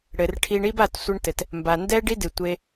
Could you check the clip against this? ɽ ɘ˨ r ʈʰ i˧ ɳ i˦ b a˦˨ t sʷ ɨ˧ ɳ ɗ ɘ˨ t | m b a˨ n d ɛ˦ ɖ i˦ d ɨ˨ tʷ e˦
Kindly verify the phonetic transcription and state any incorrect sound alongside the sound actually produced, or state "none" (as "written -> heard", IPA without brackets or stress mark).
ɗ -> t